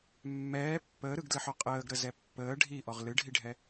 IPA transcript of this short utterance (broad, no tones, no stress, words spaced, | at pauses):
mːɛː pːəːɾɯɡdlɘħɔ qʼəːɡɾəzɛ pːəː ɖʱiʔɔʁ lɨɖʱiɖʱɛ